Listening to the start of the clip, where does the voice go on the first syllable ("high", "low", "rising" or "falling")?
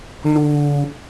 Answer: high